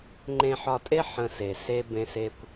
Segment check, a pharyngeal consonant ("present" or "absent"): present